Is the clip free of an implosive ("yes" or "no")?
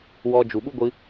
no